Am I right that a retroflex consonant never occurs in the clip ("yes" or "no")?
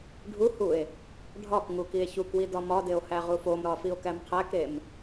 no